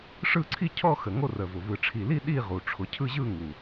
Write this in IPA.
ʂɯ˥˧ǀʰi˥˧ cʰɔ˥˧xə˨˩ ŋo˥˧rə˨˩vʊ˨˩ vɯ˨˩ʈ͡ʂʰi˨˩li˥˧ ɗi˥˧ʁu˨˩ ʈ͡ʂʰʊ˨˩cʰɯ˥˧ʑɯ˥˧ŋu˨˩

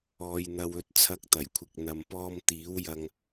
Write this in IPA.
ɔː˨jn̪ɐ˨w ɵ˨t̚t͡sʰɐ˨˥k̚ t̪ɐ˨˩jkʷʰɪ˨k̚n̪ɐ˨mpɔː˧m t̪iː˨˥wjɐ˧ŋ

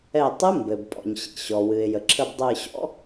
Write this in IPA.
ɛ˧˩tˤɨ˧˥ mbɘ˩b pʼɔ̰˩ɲɕḭ˩ɕɔ˩ wɨ˩ɪ̯jə˩ǁʰə˧˩b dˤɨ˧˩ɕɔ̰˧˥

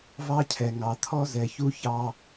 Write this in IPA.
vɑ˦cʰɛ˨ŋɑ˨ t̪ʰɔ˦zɛ˨çu˦ çɑ˦

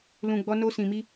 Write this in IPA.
lũ˧ɡ͡bɔ˦ no˧sĩ˨mi˧

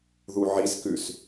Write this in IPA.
ðuʕiskʉs

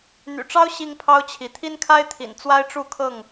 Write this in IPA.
n̪y̰˨˩ʈ͡ʂɑ˦ʊ̯ ɕi˦ŋpʰɑ˦ʊ̯t͡ɕʰi˨˦ t̪ʰi˦nkʰa˦ɪ̯t̪ʰḭ˨˩n t͡swa˦ɪ̯ʈ͡ʂu˥˨kʰɤ˥˨ŋ

